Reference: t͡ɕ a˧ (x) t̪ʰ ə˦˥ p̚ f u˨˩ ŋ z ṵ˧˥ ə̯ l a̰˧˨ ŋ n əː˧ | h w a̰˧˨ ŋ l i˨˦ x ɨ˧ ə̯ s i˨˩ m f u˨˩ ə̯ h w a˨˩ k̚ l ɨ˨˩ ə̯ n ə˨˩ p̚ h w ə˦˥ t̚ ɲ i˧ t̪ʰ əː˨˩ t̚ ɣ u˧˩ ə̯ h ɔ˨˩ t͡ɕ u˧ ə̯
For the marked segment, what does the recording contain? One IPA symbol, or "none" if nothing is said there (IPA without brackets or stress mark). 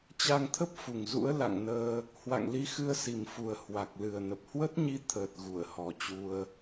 ŋ